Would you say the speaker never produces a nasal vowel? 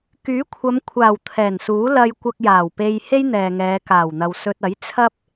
yes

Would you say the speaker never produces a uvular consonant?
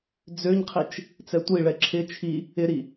no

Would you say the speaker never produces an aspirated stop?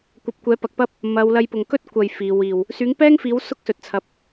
no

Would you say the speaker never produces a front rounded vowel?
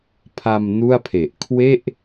yes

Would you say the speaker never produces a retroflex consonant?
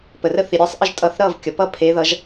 yes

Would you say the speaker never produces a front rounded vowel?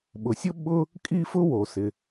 yes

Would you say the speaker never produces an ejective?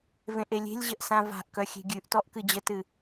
yes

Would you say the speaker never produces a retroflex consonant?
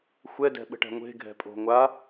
no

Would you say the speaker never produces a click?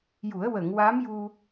yes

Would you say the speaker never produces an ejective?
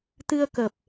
yes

